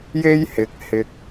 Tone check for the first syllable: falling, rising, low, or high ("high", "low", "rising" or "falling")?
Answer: high